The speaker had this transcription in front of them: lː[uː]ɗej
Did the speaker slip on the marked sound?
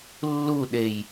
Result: yes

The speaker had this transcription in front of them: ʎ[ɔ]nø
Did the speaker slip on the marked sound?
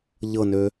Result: yes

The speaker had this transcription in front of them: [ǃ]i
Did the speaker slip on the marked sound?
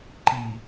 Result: no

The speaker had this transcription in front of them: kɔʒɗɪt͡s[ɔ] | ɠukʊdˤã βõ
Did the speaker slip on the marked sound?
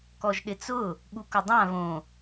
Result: yes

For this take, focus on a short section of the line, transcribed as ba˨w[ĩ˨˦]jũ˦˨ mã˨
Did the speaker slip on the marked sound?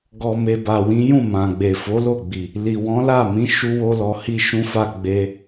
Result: no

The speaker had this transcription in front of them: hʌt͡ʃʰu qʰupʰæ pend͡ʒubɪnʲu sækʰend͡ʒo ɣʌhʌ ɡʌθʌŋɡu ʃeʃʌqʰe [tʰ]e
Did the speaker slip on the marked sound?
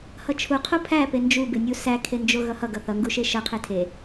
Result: no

